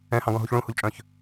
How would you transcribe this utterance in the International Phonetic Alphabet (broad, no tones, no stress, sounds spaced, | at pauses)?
ɛ̃ h ɑ̃ ɡ ɔ̃ ɦ u ç ɭ ũ h u ʎ t͡ʃʼ œ̃ ç